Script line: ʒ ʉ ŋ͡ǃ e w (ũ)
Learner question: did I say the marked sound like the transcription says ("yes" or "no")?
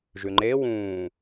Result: no